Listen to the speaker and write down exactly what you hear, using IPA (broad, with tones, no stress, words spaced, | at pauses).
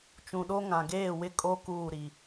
t͡ʃũ˨ɗo˦ ŋã˨ ɡeː˦˨ wɪ˦kʼo˦ kuː˦˨ɾi˨